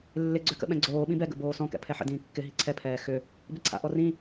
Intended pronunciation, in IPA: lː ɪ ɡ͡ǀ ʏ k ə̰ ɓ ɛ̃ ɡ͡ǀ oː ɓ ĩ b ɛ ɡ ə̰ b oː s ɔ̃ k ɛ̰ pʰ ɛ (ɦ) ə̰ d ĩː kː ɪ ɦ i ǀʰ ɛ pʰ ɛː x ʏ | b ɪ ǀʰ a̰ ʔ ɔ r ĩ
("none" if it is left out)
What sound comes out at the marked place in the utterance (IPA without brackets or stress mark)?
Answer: ħ